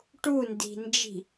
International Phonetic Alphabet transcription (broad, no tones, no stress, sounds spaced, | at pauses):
ʈ u n d i̤ n d͡ʒ i̤